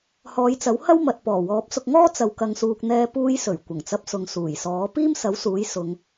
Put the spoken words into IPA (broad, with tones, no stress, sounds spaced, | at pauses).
h ɔː˨˧ j t͡s ɐ˨˥ w h ɐ˥ w m ɐ˨ t̚ p ɔː˨˩ w ɔː˨˥ p̚ s ʊ˧ k̚ ŋ ɔː˥ t͡s ɐ˨ w k ɐ˨ ŋ s uː˨ k̚ n̪ ɛː˧ p uː˧ j s ɵ˨˩ ɥ kʷ ɐ˨˩ ŋ t͡s ɐ˧ p̚ s ʊ˨ ŋ s uː˨˩ j s ɔː˨˥ p iː˥ m s ɐ˨˥ w s uː˨˥ j s ʊ˨˧ ŋ